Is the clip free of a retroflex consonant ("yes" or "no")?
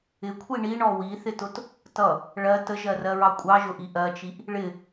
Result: no